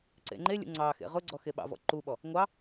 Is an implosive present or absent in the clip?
present